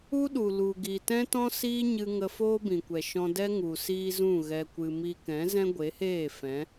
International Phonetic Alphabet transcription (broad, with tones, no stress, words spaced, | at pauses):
u˦ɗu˨ lu˨ɡi˨tɛ̃˦tɔ̃˦ siː˦ɲɨ˧ ŋə˧foː˦bĩ˨kʷɛ˨ ʃɔ̃˧dɛ˦ŋu˨ siː˦zũ˦˨ ɣɛ˧kʷɨ˧mi˦ kɛ̃˨˦zɛ̃˦ ɡʷe˨˦heː˦˨ fɛ̃˨˦